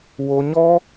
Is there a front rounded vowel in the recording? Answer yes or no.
no